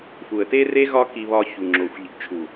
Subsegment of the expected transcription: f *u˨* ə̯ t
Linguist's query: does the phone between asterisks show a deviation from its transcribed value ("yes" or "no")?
no